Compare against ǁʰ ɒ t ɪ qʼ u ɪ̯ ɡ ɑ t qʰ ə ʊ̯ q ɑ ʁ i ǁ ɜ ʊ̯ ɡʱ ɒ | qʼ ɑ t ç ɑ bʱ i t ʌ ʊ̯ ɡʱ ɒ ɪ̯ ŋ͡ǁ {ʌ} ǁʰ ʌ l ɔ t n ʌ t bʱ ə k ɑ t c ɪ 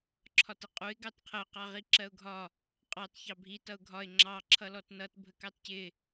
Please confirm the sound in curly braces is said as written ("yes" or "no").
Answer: no